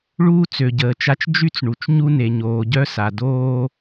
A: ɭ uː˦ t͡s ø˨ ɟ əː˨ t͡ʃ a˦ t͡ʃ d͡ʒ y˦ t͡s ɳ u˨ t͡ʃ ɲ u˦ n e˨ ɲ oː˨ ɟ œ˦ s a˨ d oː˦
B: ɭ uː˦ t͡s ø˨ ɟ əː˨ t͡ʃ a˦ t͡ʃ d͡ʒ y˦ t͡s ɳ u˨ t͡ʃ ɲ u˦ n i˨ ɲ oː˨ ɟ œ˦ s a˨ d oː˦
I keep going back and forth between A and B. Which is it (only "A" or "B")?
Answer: A